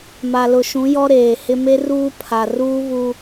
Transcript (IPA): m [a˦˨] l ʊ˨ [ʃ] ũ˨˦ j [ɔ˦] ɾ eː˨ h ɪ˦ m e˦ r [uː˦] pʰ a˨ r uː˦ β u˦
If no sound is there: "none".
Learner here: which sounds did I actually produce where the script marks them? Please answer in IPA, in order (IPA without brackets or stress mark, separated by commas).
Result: a˨, ʃ, ɔ˦, uː˦